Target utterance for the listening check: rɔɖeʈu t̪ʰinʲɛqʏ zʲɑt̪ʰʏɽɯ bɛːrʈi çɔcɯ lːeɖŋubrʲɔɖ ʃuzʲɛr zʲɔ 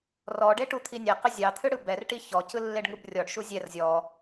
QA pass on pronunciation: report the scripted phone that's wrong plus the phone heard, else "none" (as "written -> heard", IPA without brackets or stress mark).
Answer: ɛː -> ɛ